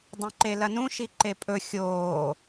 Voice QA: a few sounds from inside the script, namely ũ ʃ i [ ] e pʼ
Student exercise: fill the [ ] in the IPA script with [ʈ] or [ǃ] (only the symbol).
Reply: ǃ